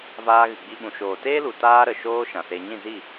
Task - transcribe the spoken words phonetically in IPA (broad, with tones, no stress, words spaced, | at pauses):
vaː˧ɣɨ˨ɡ͡bi˧ ɓũ˨ʃoː˨ teː˦lu˨ taː˦ɾə˨ ʃoː˦ ʃã˨se˧ ɲĩ˦˨zi˦˨